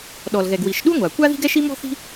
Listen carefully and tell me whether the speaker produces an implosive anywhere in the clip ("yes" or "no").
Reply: yes